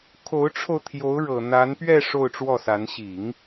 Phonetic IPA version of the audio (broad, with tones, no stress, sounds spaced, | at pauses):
kʰ o˧˥ ʊ̯ ʈ͡ʂʰ o˧ ʊ̯ t̪ʰ j o˧˥ ʊ̯ ɻ ɤ˨˩ n̪ a˧˥ n p ɥ ɛ˥˧ ʂ o˥˧ ʊ̯ ʈ͡ʂ w ɔ˥˩ s a˧˥ n ɕ i˨˩˦ ŋ